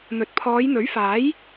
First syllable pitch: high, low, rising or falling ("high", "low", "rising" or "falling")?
low